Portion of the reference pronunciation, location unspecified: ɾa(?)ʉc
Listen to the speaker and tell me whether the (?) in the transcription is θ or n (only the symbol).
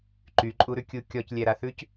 θ